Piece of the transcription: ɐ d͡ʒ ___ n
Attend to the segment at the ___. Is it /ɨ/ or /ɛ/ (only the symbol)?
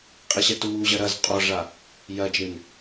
ɨ